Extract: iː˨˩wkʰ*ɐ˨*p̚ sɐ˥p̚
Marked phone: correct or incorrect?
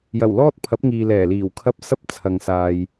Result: incorrect